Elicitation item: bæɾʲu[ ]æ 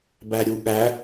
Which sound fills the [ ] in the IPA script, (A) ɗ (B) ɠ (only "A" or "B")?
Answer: B